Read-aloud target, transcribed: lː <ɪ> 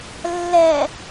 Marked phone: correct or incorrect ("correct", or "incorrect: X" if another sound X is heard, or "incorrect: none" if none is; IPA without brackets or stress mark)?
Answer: incorrect: ɛ